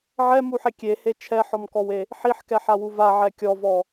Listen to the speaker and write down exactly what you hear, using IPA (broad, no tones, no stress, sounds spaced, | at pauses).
ʕ ɛ m u ħ e kʲ e h e t͡ʃʰ ɛ ħ ɔ m k ɔ w e | ħ i ħ k ɛ ħ a w u v a ʕ ɛ kʲ ɔ v ɔ